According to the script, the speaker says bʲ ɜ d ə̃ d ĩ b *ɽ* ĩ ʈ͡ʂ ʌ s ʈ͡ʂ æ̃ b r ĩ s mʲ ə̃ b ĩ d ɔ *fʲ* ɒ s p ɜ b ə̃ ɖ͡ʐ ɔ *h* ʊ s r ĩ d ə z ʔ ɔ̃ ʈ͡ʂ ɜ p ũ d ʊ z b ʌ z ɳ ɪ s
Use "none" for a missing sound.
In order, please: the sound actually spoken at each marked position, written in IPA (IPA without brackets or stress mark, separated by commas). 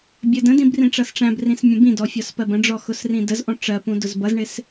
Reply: r, fʲ, x